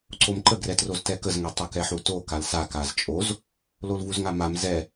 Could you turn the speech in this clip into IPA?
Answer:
ǀ o m ǃ ə ɡ r ɛ t r o z t ɛ k ə z ŋ ɛ tˤ u k ɛ ħ u t o k a l s a k a z t͡ʃʼ o z | l o l v u z ŋ a m a m z ɛ

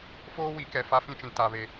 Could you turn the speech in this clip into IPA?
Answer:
f oː˦ w i˨˦ k ɛ˨ f a˦ f ĩ˦ t͡ʃ ĩ˨ t a˨ β e˨

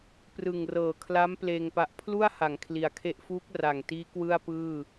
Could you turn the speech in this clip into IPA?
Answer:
p r ɯ˨˩ ŋ r ɤː˨˩ kʰ l a˦˥ m p l eː˧ ŋ p a˦˥ ʔ pʰ l u˥˩ a̯ h a˩˦ ŋ kʰ l i˩˦ a̯ kʰ e˦˥ ʔ f uː˦˥ k̚ r a˨˩ ŋ t iː˦˥ k w ɯ˥˩ a̯ p ɯː˥˩

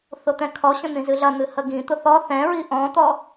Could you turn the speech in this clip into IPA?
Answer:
θ ʊ t̪ ɛ̃ kʰ ɔ ɕ ə̃ n̪ ĩ z ɨ ɮ ɐ n̪ ɨ h ə ɡ ĩ t̪ ʊ θ ɔ θ ɛ̃ ɹ i ʔ ɔ̃ t̪ ɔ

